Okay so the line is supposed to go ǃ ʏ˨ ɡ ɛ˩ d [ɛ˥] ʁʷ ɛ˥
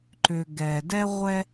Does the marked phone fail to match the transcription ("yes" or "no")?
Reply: no